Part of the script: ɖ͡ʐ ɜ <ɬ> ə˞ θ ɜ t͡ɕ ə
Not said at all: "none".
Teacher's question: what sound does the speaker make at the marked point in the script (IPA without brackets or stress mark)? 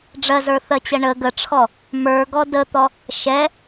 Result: z